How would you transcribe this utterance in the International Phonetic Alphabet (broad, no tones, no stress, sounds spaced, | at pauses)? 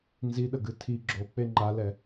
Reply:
n z i ɗ ə ɡ ɨ tʰ i ɡ͡ǁ o k͡p e ŋ͡ǃ a l ɛ